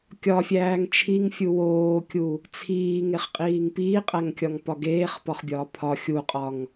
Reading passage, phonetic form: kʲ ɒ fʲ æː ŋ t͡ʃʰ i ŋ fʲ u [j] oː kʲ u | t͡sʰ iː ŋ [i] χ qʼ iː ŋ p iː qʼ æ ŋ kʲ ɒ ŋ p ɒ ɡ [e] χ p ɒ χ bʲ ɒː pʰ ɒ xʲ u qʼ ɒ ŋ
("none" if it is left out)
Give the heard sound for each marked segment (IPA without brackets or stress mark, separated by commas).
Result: w, e, eː